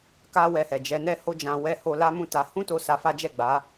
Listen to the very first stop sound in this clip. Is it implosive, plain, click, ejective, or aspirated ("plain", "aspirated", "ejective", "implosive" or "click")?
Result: plain